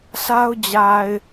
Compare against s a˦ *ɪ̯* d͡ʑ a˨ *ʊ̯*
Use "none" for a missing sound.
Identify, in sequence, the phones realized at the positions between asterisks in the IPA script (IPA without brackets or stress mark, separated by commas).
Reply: ʊ̯, ɪ̯